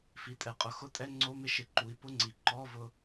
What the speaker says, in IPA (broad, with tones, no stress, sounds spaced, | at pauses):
f i˩˧ tʼ ɛ˩ qʼ ʊ˩˥ x ʊ˧˥˧ tʼ ɛ˧˥˧ ŋ͡ǀ o˧˥˧ m ɪ˧ ʃ ɪ˩˧ ǃ u˩˧ i̯ p ʊ˧˥˧ ŋ͡ǀ i˩ ǃ ɔ˧˥˧ v ʊ˧